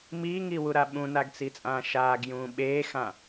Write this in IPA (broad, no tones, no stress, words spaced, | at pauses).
miːŋiwuɾa ɓũnaɡt͡sit͡sʼãː ʃaːɡjũː ɓeːxã